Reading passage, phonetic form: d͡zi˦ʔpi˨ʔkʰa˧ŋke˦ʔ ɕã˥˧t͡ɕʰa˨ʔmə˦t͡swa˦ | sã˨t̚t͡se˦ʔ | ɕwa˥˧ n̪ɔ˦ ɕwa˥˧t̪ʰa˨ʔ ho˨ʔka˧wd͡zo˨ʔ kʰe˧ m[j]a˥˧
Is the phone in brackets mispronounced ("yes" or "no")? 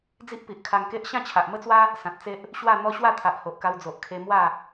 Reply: yes